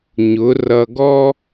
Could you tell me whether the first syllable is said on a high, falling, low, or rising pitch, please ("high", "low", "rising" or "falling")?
rising